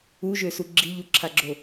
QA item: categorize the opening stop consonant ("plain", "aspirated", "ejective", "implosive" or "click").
click